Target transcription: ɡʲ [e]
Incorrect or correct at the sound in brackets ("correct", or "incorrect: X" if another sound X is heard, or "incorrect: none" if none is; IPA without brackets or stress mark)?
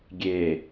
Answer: correct